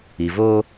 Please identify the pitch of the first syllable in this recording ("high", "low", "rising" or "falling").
low